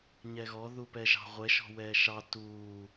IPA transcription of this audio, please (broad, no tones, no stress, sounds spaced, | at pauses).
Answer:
ɲ ɛ ɣ ɔ ð u p ɛ ʒ ɑ̤ ʁʷ ɛ ʃ ɔ̤ w ɛː ʃ ɑ t uː